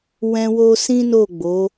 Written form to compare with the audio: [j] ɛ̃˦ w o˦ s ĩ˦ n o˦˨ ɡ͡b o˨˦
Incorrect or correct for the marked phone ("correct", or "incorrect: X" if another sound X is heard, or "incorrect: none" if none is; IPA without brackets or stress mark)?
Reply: incorrect: w